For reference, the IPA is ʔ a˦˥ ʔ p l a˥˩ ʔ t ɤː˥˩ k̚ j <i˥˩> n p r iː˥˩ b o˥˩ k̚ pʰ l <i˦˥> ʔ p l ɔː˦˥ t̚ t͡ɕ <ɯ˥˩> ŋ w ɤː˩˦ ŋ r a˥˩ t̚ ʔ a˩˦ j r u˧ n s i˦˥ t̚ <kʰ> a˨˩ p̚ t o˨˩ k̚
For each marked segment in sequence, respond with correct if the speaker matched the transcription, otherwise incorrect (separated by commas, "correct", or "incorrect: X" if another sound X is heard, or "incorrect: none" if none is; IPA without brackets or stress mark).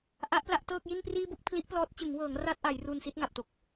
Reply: correct, correct, incorrect: ɯ˩˦, incorrect: ŋ